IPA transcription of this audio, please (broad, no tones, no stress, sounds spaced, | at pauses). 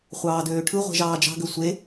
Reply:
χʷ ɑː d øː ʈʰ ɯ ʁʷ e̤ ʒ ɑː d͡ʒ ɑ̤ ɡ ø sʷ e